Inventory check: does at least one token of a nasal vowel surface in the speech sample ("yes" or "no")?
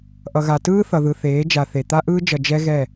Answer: no